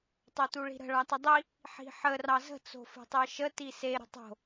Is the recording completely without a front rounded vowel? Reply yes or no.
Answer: yes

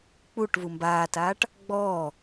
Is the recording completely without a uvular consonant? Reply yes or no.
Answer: yes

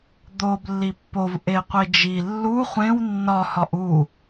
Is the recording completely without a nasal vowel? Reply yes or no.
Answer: no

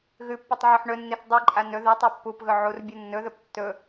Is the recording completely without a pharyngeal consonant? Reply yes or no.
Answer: no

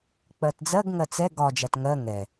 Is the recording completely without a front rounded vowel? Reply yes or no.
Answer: yes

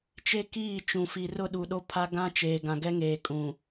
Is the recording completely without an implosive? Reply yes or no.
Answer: no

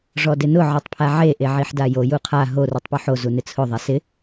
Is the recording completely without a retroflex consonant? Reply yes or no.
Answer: no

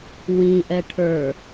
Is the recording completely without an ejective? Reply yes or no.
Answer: yes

